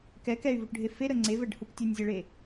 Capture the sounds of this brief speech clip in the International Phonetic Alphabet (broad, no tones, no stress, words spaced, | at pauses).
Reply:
kɛk ɛy̯vuʈɖʱe feɾə ŋ͡ǀevɛɖhuk tʲɛnʲzʲeɭe